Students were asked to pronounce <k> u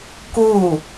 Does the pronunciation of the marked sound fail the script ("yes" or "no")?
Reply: no